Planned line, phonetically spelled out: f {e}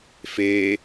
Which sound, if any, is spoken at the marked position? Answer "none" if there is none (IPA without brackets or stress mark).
e